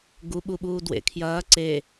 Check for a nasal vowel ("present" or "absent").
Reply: absent